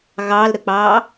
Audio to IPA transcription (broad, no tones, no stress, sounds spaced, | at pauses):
ɣ ɑ l ɾ ə k͡p ɑː